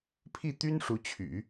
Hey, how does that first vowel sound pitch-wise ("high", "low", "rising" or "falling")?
falling